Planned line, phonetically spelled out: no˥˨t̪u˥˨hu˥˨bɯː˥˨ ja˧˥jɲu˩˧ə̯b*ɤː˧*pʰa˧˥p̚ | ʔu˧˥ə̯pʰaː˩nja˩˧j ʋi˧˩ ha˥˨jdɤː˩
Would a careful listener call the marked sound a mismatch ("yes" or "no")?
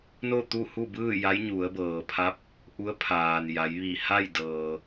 yes